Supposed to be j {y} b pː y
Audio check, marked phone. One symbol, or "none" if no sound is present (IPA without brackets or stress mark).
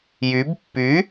y